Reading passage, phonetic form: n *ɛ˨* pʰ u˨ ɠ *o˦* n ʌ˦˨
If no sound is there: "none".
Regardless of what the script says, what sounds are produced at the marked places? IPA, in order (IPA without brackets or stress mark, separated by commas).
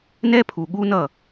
ɛ˦, u˦